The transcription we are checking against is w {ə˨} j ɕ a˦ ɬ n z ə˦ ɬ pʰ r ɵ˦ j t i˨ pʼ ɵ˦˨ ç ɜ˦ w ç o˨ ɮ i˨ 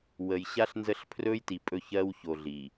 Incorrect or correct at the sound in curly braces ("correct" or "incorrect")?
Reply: correct